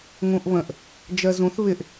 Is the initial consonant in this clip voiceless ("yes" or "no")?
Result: no